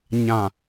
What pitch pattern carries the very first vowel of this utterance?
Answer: low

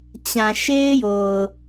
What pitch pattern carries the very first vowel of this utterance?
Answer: low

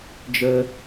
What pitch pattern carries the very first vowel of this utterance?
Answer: high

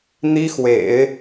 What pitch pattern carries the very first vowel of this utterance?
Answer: high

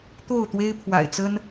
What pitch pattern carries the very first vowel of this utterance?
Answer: falling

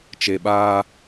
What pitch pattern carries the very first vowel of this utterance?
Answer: low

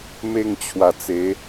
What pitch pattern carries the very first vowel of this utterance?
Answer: falling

